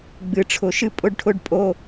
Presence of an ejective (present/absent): present